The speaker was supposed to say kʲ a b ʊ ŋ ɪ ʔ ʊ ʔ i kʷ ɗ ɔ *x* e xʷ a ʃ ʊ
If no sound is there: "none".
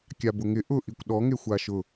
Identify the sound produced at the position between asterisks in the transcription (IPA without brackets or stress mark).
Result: ŋ